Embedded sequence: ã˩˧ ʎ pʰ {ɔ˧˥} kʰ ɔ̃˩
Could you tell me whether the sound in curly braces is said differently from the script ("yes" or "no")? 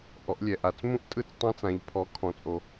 yes